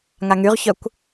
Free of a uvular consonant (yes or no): no